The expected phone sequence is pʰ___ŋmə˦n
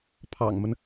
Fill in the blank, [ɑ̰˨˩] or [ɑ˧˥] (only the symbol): ɑ̰˨˩